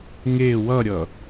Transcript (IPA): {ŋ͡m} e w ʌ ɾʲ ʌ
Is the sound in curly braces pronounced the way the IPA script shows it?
no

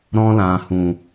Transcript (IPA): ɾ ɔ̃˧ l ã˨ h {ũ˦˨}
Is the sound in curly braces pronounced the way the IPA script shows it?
no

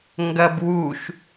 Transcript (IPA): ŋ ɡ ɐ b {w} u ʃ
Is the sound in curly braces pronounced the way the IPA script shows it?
yes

